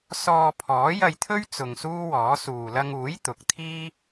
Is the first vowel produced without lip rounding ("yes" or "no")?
no